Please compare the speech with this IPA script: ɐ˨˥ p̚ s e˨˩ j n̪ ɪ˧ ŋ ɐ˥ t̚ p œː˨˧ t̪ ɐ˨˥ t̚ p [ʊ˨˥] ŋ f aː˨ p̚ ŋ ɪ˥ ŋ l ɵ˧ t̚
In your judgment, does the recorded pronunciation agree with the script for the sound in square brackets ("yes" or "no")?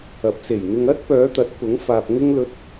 yes